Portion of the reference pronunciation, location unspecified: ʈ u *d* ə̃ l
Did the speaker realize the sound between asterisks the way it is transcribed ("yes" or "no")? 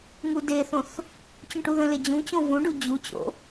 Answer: no